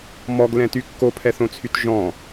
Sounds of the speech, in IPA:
m ɔ ɡ l ɛ̃ t y kː o pʰ ɛ θ õ t͡sʰ y t ʒ ɔ̃

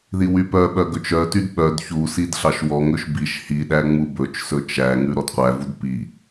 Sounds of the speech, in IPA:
ð i w y p œ ɓ œ ɡ ɵ t͡ʃ œ t y d ɓ œ d ç u s i d ɬ ɑ ʃ w ɔ ŋ ɵ ʃ b i ʃ h i ɗ æ ŋ͡m u b ɵ t͡ʃ s ɵ t͡ʃ æ ŋ ʉ ɾ ɔ d qʷ æ v u d p i

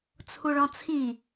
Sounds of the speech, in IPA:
t͡sʰ u ɭ ɔ̃ t͡sʰ i

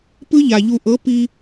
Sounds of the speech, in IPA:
p ɯ˦ ʎ a˨ ʎ u˨ ʔ ɤ˨˦ p i˦

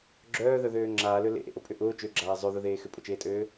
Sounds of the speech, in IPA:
ɡ͡ǁ œː ð œ ð øː ŋ͡ǁ aː l ø l ḛ ʔ ḛ ʔ o pʼ ʏ ʔ ʊː t͡ʃ ø ɡ͡ǁ aː zˤ ø ð ʊ ð eː x ʏ pʼ ʊ t͡ʃ eː tʼ øː

